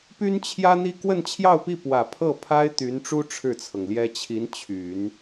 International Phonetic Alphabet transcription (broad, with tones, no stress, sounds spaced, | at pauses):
p y˥ n t͡ɕʰ j ä˥ n̪ i˥ k w ə˥˧ n t͡ɕʰ j ɑ˥˧ ʊ̯ p i˥˩ p w ä˨˩ pʰ ɤ˥˩ pʰ a˥ ɪ̯ t̪ y˧˥ n ʈ͡ʂ u˥ ʈ͡ʂʰ ɻ̩˥˩ t͡sʰ ɤ˩ ŋ l j ɛ˥ t͡ɕʰ i˧˥ n t͡ɕʰ y˨˩˦ n